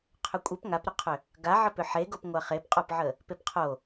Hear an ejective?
yes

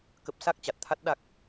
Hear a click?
no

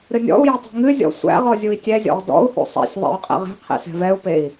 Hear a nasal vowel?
no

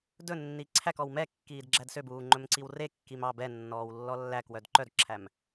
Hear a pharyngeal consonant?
no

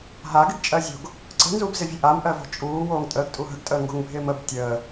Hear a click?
yes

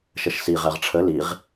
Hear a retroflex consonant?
yes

